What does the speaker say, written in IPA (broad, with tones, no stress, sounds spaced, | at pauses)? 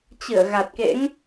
t͡ɕ ɨ˧˩ ə̯ ɣ a˨˩ t̚ k ḛ˧˥ ŋ